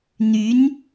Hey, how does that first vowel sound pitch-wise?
rising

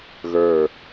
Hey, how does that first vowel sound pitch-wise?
low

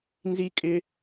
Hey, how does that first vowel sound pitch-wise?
high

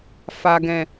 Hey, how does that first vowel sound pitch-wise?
low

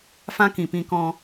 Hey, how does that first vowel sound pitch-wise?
high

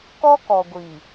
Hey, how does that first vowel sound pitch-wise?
high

